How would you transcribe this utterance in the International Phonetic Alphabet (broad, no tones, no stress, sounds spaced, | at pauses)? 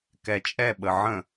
k ɛ t͡ʃʼ ɛ ɓ ə ʕ ə̃